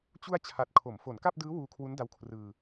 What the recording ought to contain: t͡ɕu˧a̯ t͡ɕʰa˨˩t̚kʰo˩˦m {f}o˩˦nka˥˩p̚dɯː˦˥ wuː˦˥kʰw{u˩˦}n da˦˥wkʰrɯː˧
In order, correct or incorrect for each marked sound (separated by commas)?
correct, incorrect